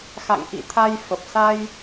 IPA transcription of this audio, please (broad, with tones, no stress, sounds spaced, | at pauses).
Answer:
x a̰˧˨ ŋ ʔ ḭ˧˨ t̪ʰ a˧ j f ə˨˩ p̚ s a˧ j